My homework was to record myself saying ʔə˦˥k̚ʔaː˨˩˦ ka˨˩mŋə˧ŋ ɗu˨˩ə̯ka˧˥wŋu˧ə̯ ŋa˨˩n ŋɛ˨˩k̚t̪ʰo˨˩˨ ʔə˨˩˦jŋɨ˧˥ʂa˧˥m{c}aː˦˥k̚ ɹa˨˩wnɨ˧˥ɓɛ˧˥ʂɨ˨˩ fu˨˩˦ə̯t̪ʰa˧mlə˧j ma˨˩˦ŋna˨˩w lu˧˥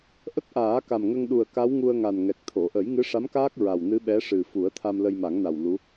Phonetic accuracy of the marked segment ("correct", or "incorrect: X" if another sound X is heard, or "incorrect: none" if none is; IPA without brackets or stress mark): incorrect: k